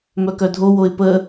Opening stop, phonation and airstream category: plain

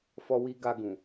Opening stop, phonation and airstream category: plain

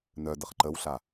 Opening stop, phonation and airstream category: plain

